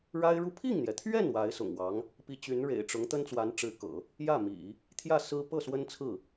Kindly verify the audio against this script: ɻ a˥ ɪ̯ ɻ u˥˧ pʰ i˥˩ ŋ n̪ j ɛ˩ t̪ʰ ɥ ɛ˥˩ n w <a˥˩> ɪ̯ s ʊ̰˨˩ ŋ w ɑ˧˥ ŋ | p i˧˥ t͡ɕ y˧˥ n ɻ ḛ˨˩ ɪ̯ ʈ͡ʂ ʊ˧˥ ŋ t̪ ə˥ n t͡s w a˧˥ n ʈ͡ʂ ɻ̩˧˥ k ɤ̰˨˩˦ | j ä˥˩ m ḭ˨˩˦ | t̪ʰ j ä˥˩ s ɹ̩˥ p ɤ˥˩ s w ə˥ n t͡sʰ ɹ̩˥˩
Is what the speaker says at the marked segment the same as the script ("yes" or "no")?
no